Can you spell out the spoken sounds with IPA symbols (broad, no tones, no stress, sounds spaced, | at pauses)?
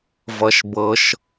v ʌ ʃ b ɤ ʃ